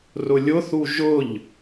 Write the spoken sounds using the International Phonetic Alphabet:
r ʊ lʲ ʊ θ u ʒ ʊ ʎ

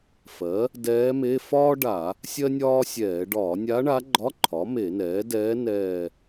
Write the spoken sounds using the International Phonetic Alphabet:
f ɜ˩˥ | d ɛː˧˥ m e˧˥˧ f ɒː˥ ɖ a˧˩˧ | sʲ ɜ˥ nʲ ɒː˥ sʲ ɛː˧˩˧ ɖ ɒː˧˩˧ nʲ a˧˥ ɳ a˧˥ ɡ͡ǃ ɒ˧˥˧ ǃʰ ɒ˩˥ m e˧˩˧ n ɛː˩˥ d ɛː˧˥ n ɛː˦˨

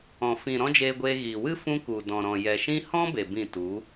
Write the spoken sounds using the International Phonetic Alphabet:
ɔ̃˨ f ĩ˨ ɾ ɔ̃˦ d͡ʒ eː˧ ɡʷ eː˧ ɣ iː˨ w ɨ˦ f ũ˧ k u˨ d ɔ̃˨ ɾ ɔ̃˨ j ɛ˨ ʃ ĩ˦ h ɔ̃˦ b e˨ b ĩ˦˨ t u˨˦

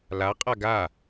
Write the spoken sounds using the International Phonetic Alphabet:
l a qʼ a ɡ a

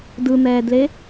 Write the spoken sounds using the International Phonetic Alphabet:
d ɯ n̪ ɛː d l e

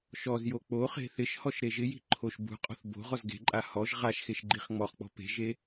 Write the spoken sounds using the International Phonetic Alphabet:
ʃ ɔ z j o k͡p o χ e̤ θ ɪ ʃ h ɔ ʃ ɾ e ʒ ɪ j i̤ ǃʰ o ʃ b ṳ qʼ ɔ̤ θ b o̤ ʁ ɔ z ɡ e̤ ǃʼ a h ɔ ʒ ʁ a ʃ x e ʃ ɡ͡ǃ i χ ŋ͡m ɔ χ k͡p ɔ̤ p e̤ ʒ e

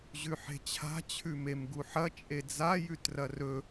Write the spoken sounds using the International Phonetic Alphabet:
ʑ ʉ ħ e̤ t͡ɕʰ a̤ t͡ɕʰ ʉ m e m ɡ u ħ ɐ t͡ʃʼ e d͡z a j ʉ t r ɐ r ɵ

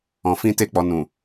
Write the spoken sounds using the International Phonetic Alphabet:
ɔ̃˨ f ĩ˧ t e˧ k͡p ɔ˨ n ũ˨

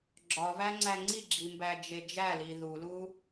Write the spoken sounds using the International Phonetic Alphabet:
ɡ͡ǁ ɒ v æ ŋ͡ǀ æ ŋ͡ǀ i ɡ͡ǁ i m b æ d͡ʒ e d͡ʒ æ l i ð u l u

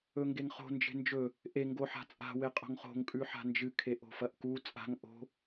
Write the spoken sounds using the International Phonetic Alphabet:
ɵ ŋ ɡ e ŋ χ o̤ n d͡ʒ e̤ n d͡ʒ ɵ | ʔ e ŋ ɡ o ħ a̤ t͡sʼ a̤ w e qʼ o̤ ŋ χ o̤ ŋ kʼ ʉ ħ a̤ n d͡ʒ ɨ kʰ e ʔ o̤ f ɐ ʔ k u t͡sʼ a̤ ŋ ʔ o̤

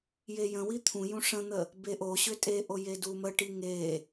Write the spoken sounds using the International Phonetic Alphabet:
j e j ə̃ w i t̪ʰ ũ j ũ ʂ ə̃ n̪ ə | b e ʔ o ɕ ʏ tʼ e ʔ o j e d u m ə ʈ i ŋ e

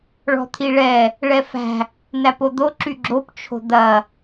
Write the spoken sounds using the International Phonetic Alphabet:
ɭ ɔ̤ t̪ʰ i ɭ ɛ | ɭ ɛ f æ̤ | n̪ æ p o d̪ o ǁ y ɡ͡ǁ o p t͡ʃʰ o̤ d̪ ɐ

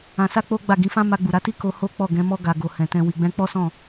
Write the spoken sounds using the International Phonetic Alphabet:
ã˧ s a˦ k͡p o˦ ɡ͡b a˦˨ ɡ ĩ˨˦ f ã˦ m a˧ ɡ͡b u˨ ɾ a˨˦ t i˦ k o˧ h o˦ k͡p ɔ˦˨ ɡ ɛ̃˨˦ m ɔ˧ ɡ a˨ ɡ o˨ h ɛ̃˨ t ɛ̃˧ w i˨ ɡ͡b ɛ̃˧ k͡p ɔ˦ s ɔ̃˦˨

